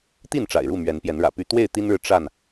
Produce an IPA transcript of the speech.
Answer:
t̪ i˥˨ n ʈ͡ʂ a̰˨˩ ɪ̯ ɻ u˥˨ m ɥ ɛ˨˦ n p j ɛ˨˦ n ɻ ä̰˨˩ p y˦ t̪ w e˥˨ ɪ̯ t̪ i˦ n ɻ ɻ̩˨ ʈ͡ʂ a˥˨ n

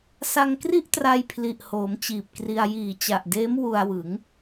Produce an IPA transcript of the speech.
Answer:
s a˧ ŋ k r i˥˩ ʔ t r a˧ j pʰ l i˨˩ ʔ h oː˩˦ m t͡ɕ iː˨˩ p̚ k r i˧ a̯ j iː˨˩ t͡ɕ a˨˩ ʔ d eː˦˥ m w u˧ a̯ w ɯ˩˦ ŋ

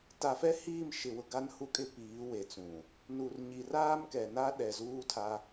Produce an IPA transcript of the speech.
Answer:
t a˨ f ɛ˦ h iː˦˨ m ʃ ɪ˨ w ʊ˨ ɡ a˦ n h u˦ kʼ ɪ˦ p iː˨˦ w e˨ t͡s ũ˨ | n u˨ r ɲ i˨ r aː˦ m k ɛ˨ n a˦ ɗ ɛ˨ z uː˦ tʰ a˦

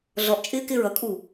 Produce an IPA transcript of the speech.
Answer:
ɮ ɔ ʔ t͡ʃʼ ɪː k ɪː ɹ ʌ kʼ uː

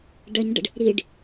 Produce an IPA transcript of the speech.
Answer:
ɖ ɐ ɲ ɖ ə̰ ɖ | ɾ i ɖ

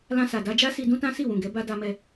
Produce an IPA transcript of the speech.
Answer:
l ã˧ s a˨ d a˧ d͡ʒ a˦ s i˧ d ũ˦ t ã˦ s i˦˨ w ũ˨ ɡ ɛ˨˦ b a˧ d a˧ m ɛ˧

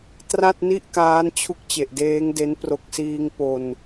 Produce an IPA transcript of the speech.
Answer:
t r a˥˩ t̚ n i˥˩ ʔ k aː˦˥ n t͡ɕʰ u˦˥ k̚ t͡ɕ e˨˩ ʔ d eː˦˥ ŋ d e˦˥ n p r o˨˩ k̚ s iː˧ ŋ p o˧ n

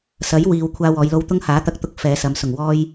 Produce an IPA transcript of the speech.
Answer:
s ɐ˨˥ j w iː˨ w kʷʰ aː˧ w ɔː˨˧ j l o˧ w t̪ ʊ˥ ŋ h aː˨˥ t̪ ɐ˧ k̚ t̪ ʊ˧ k̚ f ɛː˨˧ s ɐ˨˧ m s ʊ˨˩ ŋ w ɔː˧ j

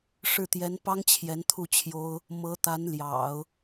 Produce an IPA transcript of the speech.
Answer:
ʂ ɻ̩˥˩ t̪ j ɛ˧˥ n p ɑ˥ ŋ t͡ɕʰ j ɛ˧˥ n t̪ʰ u˥˩ t͡ɕʰ j o˥ ʊ̯ | m ɤ˧˥ t̪ a˧˥ n l j ɑ̰˨˩˦ ʊ̯

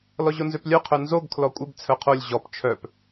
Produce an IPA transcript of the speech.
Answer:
l ɔ ʑ o n z ø p lʲ œ qʰ œ n z o ɡ kʰ l ɔ kʷʼ ɪ b t͡sʰ œ qʰ o lʲ ʑ ɔ p t͡ʃʰ œ p

